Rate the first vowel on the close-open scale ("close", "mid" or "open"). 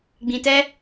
close